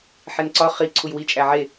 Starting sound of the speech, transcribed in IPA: ħ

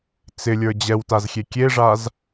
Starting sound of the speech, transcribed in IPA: t͡s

